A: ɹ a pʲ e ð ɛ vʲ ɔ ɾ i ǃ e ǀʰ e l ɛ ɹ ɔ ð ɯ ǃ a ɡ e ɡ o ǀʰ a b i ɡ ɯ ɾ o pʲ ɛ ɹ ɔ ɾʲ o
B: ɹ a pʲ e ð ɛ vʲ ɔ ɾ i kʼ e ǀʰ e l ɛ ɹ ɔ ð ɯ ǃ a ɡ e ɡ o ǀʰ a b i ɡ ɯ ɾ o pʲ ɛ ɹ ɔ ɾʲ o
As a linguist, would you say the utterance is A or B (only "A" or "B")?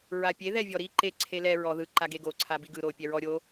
A